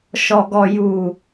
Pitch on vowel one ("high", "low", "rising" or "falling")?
low